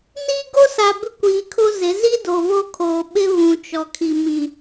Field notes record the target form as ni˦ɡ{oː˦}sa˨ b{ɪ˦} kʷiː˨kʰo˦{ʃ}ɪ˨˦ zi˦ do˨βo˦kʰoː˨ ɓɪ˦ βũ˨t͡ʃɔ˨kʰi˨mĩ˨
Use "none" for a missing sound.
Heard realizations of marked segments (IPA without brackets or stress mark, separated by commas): o˦, ɪ˦, z